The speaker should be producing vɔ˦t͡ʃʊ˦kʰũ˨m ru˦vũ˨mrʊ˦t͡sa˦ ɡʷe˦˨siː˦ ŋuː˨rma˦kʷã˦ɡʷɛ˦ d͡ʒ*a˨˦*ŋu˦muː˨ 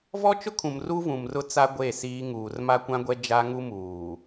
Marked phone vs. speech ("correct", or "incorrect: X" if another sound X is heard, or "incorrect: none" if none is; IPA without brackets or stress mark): incorrect: a˦